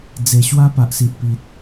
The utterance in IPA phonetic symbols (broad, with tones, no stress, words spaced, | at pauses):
d͡ze˨˩ɕwa˦ pa˨ʔsi˨ʔpi˨t̚